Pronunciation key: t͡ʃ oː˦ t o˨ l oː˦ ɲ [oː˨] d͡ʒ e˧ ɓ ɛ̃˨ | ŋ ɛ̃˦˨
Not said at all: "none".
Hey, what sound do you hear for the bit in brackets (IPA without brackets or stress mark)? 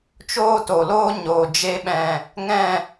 oː˨